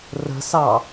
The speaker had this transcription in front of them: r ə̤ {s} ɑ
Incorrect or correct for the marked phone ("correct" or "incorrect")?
correct